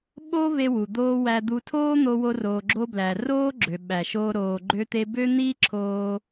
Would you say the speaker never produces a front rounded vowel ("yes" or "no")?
no